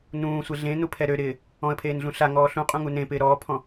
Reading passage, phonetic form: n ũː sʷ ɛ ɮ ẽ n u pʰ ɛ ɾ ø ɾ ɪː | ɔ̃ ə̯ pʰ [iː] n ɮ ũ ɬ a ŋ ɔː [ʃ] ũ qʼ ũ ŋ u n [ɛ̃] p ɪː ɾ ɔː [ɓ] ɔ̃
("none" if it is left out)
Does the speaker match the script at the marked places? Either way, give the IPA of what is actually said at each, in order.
eː, ɬ, ẽ, pʰ

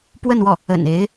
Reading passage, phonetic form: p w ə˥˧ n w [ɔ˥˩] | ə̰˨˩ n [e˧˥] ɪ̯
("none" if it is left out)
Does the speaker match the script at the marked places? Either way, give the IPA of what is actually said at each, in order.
ɔ˥˩, e˧˥

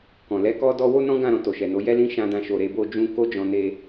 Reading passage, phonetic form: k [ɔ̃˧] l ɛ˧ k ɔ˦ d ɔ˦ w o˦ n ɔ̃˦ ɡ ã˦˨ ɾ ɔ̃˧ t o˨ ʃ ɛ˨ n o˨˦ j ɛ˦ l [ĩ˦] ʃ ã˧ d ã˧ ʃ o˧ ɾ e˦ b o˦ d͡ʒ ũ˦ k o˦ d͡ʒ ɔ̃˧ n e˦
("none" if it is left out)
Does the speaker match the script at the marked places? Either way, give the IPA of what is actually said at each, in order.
ɔ̃˨, ĩ˦

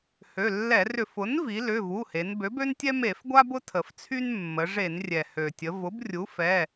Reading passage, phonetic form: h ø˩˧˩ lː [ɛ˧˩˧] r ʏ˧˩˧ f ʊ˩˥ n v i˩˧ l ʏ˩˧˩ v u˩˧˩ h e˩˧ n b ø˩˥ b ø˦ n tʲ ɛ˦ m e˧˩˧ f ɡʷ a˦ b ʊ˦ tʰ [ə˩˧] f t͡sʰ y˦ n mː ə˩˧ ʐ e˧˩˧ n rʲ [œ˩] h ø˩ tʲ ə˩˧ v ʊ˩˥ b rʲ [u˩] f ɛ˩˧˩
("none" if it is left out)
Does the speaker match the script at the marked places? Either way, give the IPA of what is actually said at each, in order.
ɛ˧˩˧, ə˩, ɛ˩, u˩˥

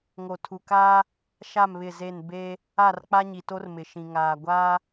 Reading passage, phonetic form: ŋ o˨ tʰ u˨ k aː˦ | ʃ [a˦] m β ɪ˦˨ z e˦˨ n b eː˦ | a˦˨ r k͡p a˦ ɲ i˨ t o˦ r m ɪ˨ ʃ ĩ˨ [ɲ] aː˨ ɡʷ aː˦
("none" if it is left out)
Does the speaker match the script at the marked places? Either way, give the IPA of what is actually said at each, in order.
a˦˨, ŋ

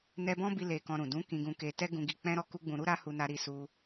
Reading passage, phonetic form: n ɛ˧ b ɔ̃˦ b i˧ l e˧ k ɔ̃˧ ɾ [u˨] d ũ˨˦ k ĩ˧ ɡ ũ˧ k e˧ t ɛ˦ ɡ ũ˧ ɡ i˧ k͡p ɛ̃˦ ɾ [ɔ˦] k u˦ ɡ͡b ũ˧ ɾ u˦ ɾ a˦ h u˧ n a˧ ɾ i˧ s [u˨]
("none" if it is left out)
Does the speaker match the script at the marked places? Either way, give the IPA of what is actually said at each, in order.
ũ˨, ɔ˦, u˧

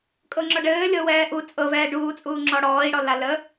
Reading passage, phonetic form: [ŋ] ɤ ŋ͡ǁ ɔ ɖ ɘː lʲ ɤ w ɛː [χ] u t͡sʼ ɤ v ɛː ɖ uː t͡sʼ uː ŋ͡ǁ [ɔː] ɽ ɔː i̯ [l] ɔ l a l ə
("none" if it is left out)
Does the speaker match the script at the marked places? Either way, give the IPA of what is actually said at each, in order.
kʼ, ʔ, ɔ, ɽ

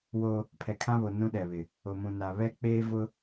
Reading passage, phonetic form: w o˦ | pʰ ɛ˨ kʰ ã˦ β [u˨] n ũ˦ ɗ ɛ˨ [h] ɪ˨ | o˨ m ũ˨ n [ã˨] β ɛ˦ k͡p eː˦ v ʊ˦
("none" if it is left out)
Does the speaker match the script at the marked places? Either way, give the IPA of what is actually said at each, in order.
o˨, β, a˨

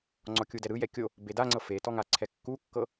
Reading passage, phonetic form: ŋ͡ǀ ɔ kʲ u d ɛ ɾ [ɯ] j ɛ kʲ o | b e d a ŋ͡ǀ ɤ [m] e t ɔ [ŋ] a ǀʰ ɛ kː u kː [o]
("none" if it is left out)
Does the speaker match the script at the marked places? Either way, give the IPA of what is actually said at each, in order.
ɯ, f, ŋ, ɤ

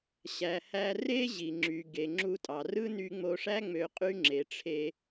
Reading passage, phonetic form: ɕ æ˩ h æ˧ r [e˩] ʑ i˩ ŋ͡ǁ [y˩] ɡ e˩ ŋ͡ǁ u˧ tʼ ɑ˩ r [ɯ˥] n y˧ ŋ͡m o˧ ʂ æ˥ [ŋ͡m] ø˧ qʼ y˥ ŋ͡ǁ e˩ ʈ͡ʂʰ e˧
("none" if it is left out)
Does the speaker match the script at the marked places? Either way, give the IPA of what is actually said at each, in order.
e˥, y˩, ɯ˥, ŋ͡m

